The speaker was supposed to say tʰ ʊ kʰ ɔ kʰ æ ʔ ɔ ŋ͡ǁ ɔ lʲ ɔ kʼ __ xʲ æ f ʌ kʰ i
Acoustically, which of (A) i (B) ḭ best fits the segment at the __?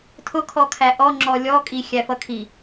A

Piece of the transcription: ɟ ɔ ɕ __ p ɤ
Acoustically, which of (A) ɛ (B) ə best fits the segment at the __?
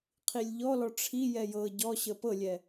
B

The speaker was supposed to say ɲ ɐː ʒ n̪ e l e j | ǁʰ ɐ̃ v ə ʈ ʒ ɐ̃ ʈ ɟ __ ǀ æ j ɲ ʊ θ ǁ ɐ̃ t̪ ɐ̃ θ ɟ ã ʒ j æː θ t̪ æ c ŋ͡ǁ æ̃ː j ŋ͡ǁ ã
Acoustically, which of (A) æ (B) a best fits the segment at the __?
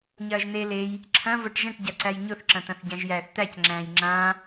B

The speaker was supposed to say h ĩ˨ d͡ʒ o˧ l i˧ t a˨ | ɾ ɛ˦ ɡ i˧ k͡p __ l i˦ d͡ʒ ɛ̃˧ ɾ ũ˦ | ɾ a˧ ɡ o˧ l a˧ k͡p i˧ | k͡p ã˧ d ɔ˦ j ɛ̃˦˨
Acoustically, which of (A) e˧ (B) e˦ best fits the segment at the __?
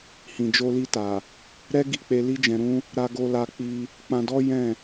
A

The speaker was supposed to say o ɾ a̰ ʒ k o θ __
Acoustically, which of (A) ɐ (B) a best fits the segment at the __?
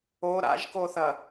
A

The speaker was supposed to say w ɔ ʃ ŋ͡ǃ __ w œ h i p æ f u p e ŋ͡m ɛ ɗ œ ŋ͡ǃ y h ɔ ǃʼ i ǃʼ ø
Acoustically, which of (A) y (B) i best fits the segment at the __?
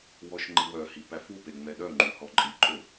B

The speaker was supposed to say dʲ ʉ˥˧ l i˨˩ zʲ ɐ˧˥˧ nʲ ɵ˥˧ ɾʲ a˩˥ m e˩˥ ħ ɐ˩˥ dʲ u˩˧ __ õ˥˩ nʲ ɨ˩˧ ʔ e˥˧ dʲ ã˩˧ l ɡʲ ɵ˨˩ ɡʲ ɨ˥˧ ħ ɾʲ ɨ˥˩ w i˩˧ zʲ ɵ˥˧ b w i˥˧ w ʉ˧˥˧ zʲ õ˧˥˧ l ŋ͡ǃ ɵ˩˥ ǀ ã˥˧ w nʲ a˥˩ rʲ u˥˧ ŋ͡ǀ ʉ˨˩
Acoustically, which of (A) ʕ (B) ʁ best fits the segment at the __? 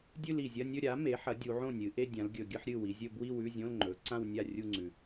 A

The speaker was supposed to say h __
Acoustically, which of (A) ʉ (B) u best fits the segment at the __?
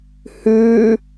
A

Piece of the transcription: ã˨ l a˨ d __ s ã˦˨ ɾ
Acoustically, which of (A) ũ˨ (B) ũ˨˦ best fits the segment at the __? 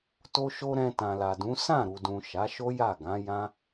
B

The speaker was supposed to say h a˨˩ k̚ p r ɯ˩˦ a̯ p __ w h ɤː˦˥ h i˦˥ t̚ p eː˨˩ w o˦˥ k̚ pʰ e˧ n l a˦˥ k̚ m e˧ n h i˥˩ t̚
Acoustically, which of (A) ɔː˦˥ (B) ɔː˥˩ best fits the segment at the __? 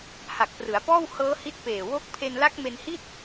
B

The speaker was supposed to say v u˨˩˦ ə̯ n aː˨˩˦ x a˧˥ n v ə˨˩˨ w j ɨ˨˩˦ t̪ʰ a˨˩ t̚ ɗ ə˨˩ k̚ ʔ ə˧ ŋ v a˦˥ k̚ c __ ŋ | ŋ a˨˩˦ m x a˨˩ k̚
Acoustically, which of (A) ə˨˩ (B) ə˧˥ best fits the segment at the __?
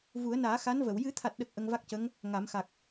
B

